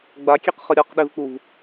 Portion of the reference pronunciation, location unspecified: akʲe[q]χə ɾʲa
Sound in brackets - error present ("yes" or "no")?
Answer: no